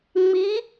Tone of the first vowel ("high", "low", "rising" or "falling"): rising